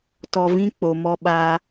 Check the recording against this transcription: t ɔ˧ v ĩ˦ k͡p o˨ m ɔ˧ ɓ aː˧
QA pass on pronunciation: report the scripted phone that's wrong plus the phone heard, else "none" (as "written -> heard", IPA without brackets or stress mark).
none